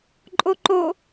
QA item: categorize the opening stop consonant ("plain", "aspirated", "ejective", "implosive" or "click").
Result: click